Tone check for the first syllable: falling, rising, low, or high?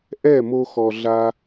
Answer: falling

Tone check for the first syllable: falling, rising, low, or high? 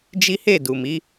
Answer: high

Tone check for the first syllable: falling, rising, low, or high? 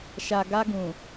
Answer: low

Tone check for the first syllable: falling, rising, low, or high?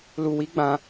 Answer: low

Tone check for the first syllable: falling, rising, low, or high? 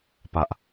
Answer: high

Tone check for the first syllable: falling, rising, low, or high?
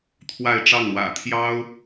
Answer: falling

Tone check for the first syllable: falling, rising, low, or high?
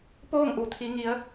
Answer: falling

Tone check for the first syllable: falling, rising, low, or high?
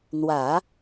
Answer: low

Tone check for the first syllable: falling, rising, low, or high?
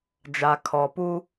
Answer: low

